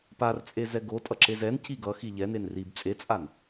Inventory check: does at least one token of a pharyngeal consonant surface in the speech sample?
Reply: no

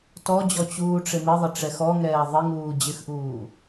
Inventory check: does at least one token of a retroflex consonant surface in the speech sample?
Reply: yes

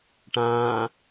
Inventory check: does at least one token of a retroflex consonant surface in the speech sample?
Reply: yes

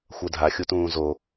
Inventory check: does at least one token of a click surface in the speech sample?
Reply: no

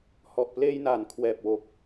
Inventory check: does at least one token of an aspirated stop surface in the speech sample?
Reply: yes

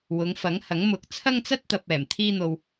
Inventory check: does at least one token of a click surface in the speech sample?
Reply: no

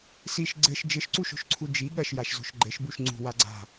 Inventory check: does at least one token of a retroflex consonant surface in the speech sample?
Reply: no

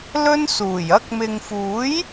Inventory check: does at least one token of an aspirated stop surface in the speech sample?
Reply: no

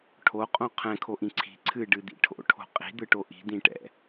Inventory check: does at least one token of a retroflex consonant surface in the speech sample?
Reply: yes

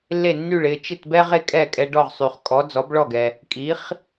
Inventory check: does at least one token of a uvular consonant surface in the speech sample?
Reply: yes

